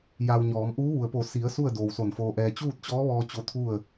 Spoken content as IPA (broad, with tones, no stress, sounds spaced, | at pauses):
j a˧ w ɲ ɔː˩˧ m ʔ uː˧˥ ʋ u˩ ə̯ p o˧˩ s i˩˧ ə̯ s u˥˨ ə̯ d oː˩ w s o˧˩ n f oː˧ ʔ ɛː˧ t͡ɕ uː˥˨ t̚ t͡ɕ ɔː˧˥ ʋ ɔː˧ t͡ɕ o˧˥ t̪ʰ u˥˨ ə̯